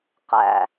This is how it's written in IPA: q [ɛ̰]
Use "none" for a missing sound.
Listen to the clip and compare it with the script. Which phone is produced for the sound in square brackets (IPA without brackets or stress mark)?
æ̰